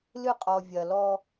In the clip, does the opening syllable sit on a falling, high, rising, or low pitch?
falling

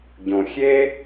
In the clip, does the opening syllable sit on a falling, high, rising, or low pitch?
low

